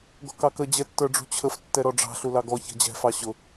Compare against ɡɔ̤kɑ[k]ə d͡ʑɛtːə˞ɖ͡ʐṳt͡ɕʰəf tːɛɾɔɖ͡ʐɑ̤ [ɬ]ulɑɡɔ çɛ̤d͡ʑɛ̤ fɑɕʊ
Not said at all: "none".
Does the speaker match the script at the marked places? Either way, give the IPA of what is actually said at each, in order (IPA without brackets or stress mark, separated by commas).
k, ɬ